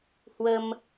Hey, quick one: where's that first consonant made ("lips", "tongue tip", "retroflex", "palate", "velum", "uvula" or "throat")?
throat